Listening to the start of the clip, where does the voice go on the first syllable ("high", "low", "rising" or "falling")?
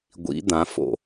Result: rising